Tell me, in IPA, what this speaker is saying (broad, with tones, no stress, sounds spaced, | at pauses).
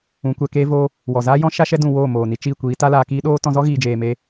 ũ˨˦ kʷ ɛ˧ k eː˦ v oː˦ | w ɔ˨ z aː˦ j ɔ̃˦ ʃ a˦ ʃ ɛ˦ d ũ˨ w oː˦˨ m oː˨ n i˧ t͡ʃ iː˦˨ kʷ iː˨˦ t a˦ l aː˧ k iː˦ ɗ oː˦ t ɔ̃˧ z ɔ˦ ɣ iː˨ d͡ʒ eː˨ m eː˧